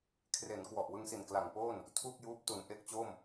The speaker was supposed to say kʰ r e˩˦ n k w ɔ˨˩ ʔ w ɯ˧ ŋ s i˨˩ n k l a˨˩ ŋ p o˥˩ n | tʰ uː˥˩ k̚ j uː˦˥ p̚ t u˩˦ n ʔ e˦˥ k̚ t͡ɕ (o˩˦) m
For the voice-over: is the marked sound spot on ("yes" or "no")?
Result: no